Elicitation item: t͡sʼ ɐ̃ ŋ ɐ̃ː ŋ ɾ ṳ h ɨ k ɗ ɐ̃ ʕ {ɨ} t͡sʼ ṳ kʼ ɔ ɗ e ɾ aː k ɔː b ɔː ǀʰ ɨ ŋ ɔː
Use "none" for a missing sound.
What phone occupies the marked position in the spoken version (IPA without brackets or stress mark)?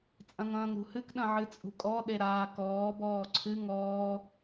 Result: ɨ